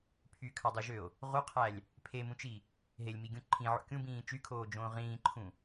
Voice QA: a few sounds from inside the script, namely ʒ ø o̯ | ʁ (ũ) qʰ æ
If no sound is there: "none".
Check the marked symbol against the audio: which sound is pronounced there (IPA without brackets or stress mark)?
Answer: u